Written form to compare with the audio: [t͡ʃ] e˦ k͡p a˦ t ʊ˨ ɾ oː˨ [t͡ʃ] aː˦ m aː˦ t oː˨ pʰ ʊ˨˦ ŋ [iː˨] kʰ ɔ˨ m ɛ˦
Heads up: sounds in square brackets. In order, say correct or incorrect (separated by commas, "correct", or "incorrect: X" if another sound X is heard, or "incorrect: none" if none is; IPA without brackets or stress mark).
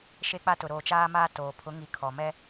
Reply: incorrect: ʃ, correct, incorrect: i˨